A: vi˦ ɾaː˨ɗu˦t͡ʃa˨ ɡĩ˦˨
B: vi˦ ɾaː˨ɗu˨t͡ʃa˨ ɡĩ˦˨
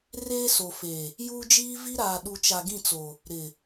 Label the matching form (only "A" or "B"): B